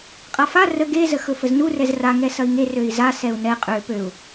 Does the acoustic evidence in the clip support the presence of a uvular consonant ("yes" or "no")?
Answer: yes